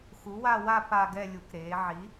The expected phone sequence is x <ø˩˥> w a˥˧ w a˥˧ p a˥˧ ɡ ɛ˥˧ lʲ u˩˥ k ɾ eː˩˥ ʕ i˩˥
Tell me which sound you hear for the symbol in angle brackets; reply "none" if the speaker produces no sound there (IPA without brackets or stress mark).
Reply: u˩˥